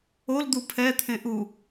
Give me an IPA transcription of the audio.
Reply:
old̪u pʰɛt̪ʰẽ ʔu

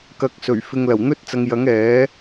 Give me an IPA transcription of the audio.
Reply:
kɐ˨k̚sɵ˨˩ɥfɪ˨ŋ lɐ˨˩wn̪ɵ˥t̚t͡sɐ˨˧ŋjɐ˨˥ŋ ɛː˨˥

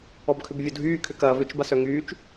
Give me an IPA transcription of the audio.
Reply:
ɔbkʰʏbvʲodʱyː kʰʏkɐːv ʏt͡ʃ basœŋyːt͡ʃ

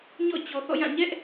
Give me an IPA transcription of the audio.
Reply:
ɲɔ̰˦˨ t͡ɕɔ˨θɔ̰˦˨jã˦˨ ɲɛ˦ʔ

